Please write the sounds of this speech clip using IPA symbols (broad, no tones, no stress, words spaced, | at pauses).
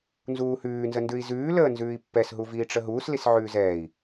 nzuːhʉːnzəndʉi̯ zʉːləː nzʉːi̯pːɛsɦuviː ʈ͡ʂəɦuːs lisʕʉːzɛːi̯